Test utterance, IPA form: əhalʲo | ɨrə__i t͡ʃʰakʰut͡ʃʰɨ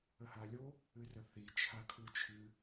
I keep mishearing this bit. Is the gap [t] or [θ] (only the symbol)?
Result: θ